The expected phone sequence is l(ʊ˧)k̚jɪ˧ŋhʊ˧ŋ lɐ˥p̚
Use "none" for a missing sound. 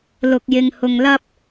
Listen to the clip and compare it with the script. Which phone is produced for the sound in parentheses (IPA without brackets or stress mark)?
ʊ˧